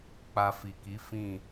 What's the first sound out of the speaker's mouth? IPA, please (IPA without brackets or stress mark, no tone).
k͡p